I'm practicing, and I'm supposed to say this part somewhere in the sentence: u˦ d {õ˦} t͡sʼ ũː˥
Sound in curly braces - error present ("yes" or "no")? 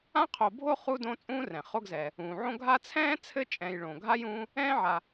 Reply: no